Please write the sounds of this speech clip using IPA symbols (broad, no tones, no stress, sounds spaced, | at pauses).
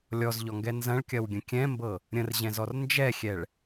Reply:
lʲ ɔ z ʎ ɔ ŋ ɡ ɛ n z ɐ̃ ɭ kʲ ɐ w ɡʲ ə̃ kʲ ɛ̃ m b ɤ | ɾʲ ə̃ r ʑ ɛ̃ z ɔ r n d͡ʒ ɛ xʲ ɛ ɭ